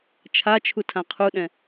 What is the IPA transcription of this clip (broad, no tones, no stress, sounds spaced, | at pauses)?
t͡ʃʰ a t͡ʃʰ u tʰ ã qʰ u ɗ ɛ̃